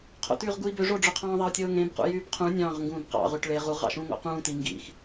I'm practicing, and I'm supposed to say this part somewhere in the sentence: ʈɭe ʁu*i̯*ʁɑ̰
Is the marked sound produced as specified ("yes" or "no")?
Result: no